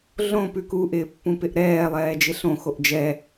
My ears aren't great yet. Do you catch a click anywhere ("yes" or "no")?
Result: no